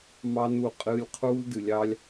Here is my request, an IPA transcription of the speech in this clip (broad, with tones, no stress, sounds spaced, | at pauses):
m ɑ˦ n u˦˨ qʼ ɨː˦ lʲ qʰ uː˦ l d ɨ˧ lʲ ɑ˦ lʲ